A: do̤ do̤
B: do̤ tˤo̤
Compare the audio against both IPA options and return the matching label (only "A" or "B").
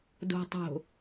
B